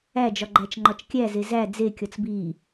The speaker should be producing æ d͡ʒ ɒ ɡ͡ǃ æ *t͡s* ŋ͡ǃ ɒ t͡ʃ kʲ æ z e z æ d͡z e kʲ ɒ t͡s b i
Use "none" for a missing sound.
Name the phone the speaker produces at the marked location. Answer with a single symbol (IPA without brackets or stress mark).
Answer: t͡ʃ